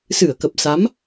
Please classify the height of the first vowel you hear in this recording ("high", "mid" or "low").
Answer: high